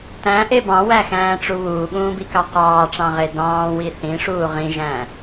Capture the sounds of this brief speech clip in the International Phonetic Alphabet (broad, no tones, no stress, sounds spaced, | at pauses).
t æ̃ ʔ e b ɑ̃ w æ x æ̃ː ʈ͡ʂ u β uː ɠ ũː b i k ɑ q ɑː ʈ͡ʂ ɑ̃ ʁ e d ɑ̃ː w i θ ĩ ʂ uː ʁ ĩ ʒ æ̃ː